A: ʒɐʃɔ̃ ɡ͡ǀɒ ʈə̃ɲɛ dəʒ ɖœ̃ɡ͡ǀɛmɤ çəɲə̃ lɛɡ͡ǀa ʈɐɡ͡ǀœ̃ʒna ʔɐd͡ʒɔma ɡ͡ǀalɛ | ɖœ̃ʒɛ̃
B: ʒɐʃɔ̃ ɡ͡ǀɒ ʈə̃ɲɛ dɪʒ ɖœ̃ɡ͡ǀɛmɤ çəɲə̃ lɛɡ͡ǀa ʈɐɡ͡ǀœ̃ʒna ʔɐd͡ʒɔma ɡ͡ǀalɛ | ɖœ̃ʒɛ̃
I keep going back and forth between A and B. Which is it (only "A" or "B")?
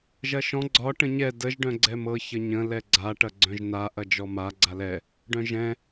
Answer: A